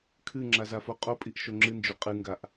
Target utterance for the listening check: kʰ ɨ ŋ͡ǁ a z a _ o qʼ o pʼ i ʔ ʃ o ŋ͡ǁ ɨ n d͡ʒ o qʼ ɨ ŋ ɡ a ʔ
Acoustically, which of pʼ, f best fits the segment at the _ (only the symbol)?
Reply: f